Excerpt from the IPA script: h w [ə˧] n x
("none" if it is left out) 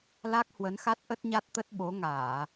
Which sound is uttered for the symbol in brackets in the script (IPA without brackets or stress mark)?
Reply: ə˨˦